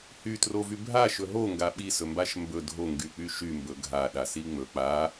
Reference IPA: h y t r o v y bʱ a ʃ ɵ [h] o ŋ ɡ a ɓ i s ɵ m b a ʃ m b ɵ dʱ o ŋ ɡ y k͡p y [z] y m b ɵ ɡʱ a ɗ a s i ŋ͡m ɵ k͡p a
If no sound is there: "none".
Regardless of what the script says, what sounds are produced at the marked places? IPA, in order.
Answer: ɦ, ʃ

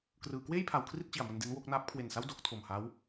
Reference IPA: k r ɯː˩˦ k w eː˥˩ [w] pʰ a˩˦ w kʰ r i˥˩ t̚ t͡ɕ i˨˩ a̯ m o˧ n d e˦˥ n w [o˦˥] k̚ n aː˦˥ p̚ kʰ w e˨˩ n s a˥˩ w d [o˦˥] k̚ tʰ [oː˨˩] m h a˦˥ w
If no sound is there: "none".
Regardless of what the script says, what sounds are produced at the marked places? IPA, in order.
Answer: j, o˦˥, o˦˥, o˨˩

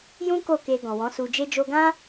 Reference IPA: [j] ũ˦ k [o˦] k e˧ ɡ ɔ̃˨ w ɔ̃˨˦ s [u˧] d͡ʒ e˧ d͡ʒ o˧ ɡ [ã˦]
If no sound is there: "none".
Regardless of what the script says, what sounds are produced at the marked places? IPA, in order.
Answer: j, o˦˨, u˧, ã˦

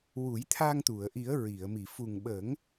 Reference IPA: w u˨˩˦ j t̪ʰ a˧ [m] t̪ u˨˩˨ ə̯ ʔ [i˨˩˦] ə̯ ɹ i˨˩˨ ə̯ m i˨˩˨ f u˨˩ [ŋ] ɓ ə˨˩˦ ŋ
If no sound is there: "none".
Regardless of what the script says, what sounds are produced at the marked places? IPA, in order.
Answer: ŋ, i˨˩˦, ŋ

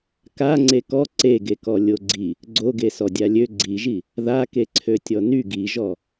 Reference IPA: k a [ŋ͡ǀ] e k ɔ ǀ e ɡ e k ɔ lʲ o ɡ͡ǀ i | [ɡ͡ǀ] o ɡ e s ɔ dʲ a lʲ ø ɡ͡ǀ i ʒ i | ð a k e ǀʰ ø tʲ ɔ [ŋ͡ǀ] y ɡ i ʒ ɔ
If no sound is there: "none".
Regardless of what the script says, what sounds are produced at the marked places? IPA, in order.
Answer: ŋ͡ǀ, ɡ͡ǀ, n

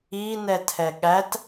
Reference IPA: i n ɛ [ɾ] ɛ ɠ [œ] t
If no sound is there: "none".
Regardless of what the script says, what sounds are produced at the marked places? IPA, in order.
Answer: tʰ, æ

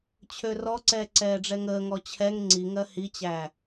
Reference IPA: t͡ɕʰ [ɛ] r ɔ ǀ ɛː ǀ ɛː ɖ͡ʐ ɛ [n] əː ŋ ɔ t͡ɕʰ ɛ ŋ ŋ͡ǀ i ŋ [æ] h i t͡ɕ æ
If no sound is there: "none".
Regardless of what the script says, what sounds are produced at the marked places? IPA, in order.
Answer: ø, ŋ, ɜ

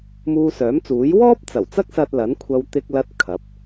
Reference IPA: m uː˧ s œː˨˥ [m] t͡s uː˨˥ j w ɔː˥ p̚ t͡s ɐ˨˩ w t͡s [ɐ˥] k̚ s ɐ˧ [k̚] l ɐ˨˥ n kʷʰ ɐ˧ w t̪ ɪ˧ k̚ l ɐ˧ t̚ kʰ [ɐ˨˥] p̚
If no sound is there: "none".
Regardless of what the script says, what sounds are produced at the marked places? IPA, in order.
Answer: m, ɐ˥, t̚, ɐ˨˥

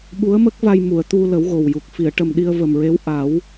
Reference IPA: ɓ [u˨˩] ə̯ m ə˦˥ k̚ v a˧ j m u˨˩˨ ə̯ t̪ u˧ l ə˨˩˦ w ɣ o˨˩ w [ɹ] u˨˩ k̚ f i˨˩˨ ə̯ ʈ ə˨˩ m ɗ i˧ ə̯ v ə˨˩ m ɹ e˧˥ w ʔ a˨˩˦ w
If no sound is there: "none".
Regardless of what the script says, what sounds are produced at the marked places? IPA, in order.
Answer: u˧˥, j

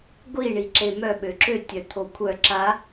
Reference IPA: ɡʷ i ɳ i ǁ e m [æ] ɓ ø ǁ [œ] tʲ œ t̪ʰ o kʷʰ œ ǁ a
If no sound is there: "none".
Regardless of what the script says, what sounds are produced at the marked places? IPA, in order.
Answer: œ, ø

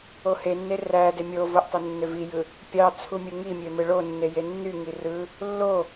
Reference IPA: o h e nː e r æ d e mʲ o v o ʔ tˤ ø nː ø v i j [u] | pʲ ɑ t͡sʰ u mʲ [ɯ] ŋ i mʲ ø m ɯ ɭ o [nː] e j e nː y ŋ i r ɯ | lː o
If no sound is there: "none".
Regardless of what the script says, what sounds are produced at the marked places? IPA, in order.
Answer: ɯ, ɯ, nː

